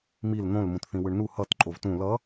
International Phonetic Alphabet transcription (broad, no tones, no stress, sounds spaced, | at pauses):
m i l n̪ õ l m ũ t θ ĩ w ɯ ɳ n u h ʌ t ǃʼ o v t ũ l ʌ